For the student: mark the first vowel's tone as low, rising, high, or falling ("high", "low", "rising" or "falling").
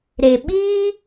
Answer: low